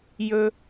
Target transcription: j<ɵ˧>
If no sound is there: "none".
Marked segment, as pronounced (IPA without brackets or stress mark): ɵ˧